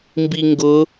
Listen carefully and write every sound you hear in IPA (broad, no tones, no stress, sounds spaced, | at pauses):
m b i ŋ ɡ ʊ